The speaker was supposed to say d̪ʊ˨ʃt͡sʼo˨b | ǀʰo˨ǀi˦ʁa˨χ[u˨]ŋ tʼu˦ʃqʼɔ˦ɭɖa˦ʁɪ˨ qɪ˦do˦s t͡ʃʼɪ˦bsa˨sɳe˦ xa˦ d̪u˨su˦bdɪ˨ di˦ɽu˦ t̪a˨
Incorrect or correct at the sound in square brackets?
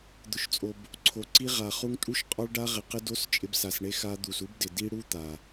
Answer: incorrect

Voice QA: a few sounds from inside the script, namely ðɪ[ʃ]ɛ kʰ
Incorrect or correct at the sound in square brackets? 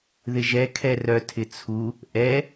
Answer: incorrect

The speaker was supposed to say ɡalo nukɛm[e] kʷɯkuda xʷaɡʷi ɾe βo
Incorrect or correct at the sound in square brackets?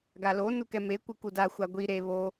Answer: correct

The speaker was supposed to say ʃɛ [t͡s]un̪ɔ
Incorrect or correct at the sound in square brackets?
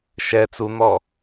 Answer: correct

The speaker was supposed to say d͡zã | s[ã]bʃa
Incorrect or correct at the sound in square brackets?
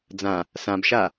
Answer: correct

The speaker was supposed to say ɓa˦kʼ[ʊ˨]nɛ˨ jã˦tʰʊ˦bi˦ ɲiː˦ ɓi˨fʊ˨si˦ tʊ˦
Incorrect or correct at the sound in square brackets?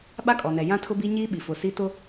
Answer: incorrect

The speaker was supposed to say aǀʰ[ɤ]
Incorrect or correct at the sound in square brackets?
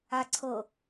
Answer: correct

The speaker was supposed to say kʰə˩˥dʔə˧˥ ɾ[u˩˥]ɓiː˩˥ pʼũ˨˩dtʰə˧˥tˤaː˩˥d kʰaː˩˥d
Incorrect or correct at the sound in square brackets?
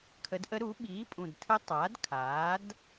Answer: correct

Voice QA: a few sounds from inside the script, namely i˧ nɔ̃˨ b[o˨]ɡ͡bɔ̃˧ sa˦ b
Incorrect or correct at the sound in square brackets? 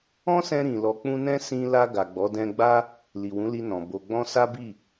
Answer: correct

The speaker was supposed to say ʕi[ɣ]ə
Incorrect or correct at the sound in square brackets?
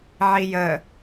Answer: incorrect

